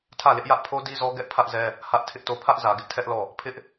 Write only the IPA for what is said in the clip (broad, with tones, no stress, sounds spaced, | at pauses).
tʰ ä˦˨ l ɪ˦ ʔ j ä˦ ʔ pʰ o˦ d i˦ z ɔ˦ ɡ ɛ˦ ʔ pʰ ä˦ ʔ z ɛ˦ | h ä˦ ʔ tʰ ɪ˦ ʔ t o˦˨ pʰ ä˦ ʔ z ä˨ ɡ ɪ˦ ʔ tʰ ɛ˦ ʔ l ɔ˦˨ | pʰ ɪ˦ ʔ